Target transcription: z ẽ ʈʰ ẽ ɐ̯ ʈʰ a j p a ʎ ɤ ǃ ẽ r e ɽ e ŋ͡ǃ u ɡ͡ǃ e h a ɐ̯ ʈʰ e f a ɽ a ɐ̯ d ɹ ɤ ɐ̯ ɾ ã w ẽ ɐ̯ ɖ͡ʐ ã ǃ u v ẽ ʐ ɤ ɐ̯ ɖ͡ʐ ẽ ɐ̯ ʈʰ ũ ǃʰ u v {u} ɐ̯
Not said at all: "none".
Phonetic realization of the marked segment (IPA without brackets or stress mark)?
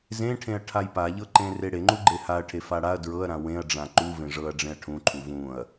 ũ